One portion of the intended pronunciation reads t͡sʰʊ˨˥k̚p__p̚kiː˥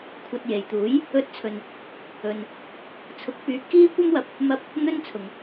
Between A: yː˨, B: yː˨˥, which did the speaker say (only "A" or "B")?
B